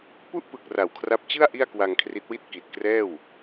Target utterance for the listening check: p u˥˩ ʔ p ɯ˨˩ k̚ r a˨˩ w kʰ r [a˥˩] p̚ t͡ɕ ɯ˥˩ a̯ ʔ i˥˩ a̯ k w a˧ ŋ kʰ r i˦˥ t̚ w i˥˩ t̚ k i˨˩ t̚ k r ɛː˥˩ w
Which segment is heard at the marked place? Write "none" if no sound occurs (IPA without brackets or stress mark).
a˦˥